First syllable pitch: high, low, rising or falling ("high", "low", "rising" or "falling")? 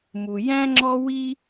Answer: low